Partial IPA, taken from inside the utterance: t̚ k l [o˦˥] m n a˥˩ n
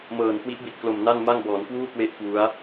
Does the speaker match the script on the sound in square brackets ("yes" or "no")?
no